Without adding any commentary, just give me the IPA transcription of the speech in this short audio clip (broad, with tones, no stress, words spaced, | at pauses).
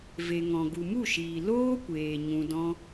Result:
ve˨ŋɔ̃˨ ɡu˨mu˦˨ʃiː˨ loː˦kʷeː˨ ɲũ˧dɔ̃˦